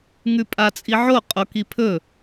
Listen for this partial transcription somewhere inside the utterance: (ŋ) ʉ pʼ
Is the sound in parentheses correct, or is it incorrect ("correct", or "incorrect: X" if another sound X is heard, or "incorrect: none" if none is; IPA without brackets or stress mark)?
correct